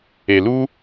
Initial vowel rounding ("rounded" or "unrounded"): unrounded